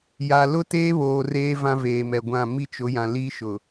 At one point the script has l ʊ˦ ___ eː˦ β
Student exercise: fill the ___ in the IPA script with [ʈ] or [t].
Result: t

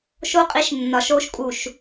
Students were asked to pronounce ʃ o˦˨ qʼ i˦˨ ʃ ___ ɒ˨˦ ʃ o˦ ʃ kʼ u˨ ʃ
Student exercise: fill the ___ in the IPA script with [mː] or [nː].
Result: nː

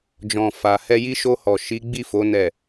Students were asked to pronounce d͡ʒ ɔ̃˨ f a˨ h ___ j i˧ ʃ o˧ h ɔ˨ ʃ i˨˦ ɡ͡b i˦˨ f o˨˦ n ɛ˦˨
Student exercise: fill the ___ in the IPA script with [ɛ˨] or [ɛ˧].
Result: ɛ˧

